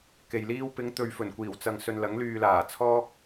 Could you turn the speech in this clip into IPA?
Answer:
ke˨jliː˥w pɪ˨˧ŋt̪ɵ˨ɥ fɵ˨˩nkʷiː˨˩wt͡sɐ˨ŋ sɵ˧nlɐ˨˥ŋlyː˧ laː˨˩t͡sʰɔː˥k̚

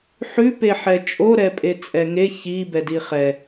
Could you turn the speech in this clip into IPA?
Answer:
ħʉ peħɛt͡ʃʼo ɾɛpʼet͡sʼɛŋe çi bɛdiχɛ

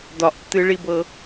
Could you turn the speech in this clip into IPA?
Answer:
dɒʔtːɨɭibɤ

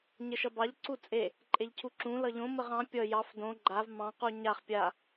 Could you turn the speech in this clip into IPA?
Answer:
ɲəʃʌbɑʎ ǀut͡sʼe | ǃʼeʎcʰuǁũ lʌʎõ məʁɑ̃ pʲʌ jɑf dõ ɡ͡ǃav mɑ̃qu ɲaχ pʲa

